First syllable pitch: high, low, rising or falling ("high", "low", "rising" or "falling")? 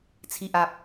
low